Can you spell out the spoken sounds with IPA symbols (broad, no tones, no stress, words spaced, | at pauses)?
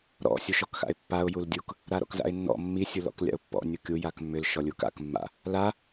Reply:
ɾɔ̰ sʲuʃɔkxa̰ɪ̯pːaʊ̯ juldʲuk | ɾaɾɔ̰kza̰ɪ̯nːɔ̰ mːi sʲulɔ̰klʲa̰ʊ̯pːɔ̰ nʲukʲu jakmːʏl ʃɔlʲuka̰k mːa̰ | la